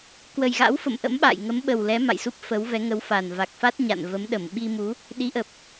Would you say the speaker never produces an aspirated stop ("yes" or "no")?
yes